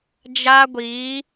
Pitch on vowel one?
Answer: high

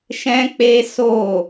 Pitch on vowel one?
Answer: high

